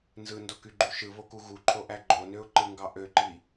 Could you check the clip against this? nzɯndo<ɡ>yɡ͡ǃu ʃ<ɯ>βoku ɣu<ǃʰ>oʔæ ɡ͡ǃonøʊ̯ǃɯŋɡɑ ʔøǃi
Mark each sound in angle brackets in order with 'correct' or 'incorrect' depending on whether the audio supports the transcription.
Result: incorrect: k, correct, correct

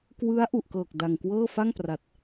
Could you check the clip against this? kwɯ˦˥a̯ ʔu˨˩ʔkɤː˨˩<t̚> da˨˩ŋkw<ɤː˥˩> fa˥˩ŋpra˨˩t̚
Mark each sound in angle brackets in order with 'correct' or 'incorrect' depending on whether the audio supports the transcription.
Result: incorrect: k̚, correct

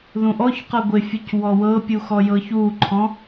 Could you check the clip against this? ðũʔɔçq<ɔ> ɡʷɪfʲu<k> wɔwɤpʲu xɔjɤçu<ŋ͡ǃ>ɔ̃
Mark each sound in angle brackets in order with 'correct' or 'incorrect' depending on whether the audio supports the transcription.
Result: incorrect: ɤ, incorrect: c, incorrect: ǃʰ

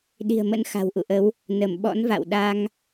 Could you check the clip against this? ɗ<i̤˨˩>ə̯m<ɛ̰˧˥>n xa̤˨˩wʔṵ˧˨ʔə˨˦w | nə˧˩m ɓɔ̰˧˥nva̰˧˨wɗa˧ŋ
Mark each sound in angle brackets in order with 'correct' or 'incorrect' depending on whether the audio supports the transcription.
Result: correct, incorrect: ə̰˧˥

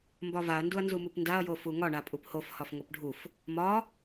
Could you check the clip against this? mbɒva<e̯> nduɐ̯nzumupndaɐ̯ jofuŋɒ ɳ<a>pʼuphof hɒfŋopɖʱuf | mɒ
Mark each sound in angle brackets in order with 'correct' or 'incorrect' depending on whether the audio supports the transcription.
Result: incorrect: ɐ̯, correct

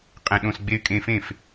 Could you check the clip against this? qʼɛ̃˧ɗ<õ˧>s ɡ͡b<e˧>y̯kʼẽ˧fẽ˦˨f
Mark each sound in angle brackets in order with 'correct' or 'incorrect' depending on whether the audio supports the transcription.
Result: correct, correct

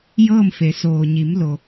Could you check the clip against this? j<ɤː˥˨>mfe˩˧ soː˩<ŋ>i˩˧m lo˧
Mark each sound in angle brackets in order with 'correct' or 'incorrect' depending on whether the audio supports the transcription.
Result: correct, incorrect: ɲ

